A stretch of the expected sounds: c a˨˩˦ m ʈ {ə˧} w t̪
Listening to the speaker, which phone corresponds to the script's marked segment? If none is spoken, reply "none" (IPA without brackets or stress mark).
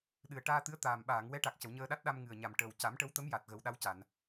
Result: ə˧˥